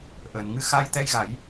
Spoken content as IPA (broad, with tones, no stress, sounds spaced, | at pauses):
ʔ əː˨˩˨ n ŋ ɨ˧ x a˧ j t̪ ɛ˧ j ɣ a˨˩˦ j